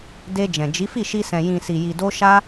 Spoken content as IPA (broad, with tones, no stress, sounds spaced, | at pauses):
d e˧ d͡ʒ ɛ̃˨ d͡ʒ i˨˦ f i˦˨ ʃ i˧ s ɛ̃˨ j ĩ˨ s i˨ j i˨ d o˧ ʃ a˦